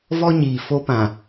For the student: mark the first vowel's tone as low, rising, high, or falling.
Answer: high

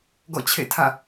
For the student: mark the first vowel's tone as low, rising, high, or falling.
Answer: falling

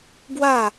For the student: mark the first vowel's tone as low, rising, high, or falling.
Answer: falling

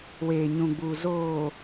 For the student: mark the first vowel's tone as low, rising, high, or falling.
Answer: low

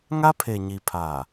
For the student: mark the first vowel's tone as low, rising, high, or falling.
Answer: high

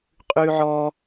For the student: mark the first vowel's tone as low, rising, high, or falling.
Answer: high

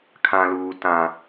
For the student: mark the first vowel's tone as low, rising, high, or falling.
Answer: high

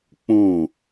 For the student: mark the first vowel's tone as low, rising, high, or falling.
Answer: falling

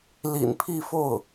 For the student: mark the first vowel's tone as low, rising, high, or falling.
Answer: low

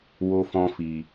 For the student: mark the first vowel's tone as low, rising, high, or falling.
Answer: high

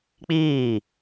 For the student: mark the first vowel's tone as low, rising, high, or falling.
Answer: falling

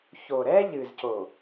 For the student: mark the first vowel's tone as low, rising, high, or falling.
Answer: low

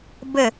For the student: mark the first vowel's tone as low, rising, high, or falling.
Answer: falling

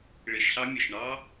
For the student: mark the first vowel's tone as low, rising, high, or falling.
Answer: low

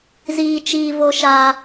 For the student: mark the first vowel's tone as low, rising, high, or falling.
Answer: high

